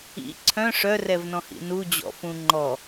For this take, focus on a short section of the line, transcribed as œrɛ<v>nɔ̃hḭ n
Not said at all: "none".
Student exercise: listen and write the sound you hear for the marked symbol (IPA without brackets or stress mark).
v